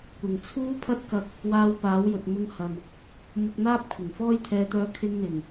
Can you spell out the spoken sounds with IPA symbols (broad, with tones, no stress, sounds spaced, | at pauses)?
kʷ ɪ˨ ŋ t͡sʰ uː˥ pʰ ɐ˥ t̚ k ɐ˧ k̚ | w aː˧ w p aː˨˥ w j ɵ˨ t̚ m ʊ˧ ŋ h ɐ˨ n | m ʊ˧ k̚ n̪ aː˥ p̚ kʷʰ ɪ˨˩ ŋ f ɔː˥ j t̪ʰ ɛː˧ t̪ œː˧ kʰ ɪ˧ ŋ n̪ ɪ˨˩ ŋ